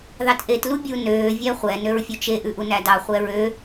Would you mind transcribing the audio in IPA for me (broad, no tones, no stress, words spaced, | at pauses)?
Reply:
ðɑtʔet lubʲu nøː vʲæχʷɛ nøɹfʲɵt͡ʃe ʔʉʔunædɑ χʷɛɹø